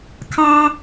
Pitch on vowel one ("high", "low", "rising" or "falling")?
high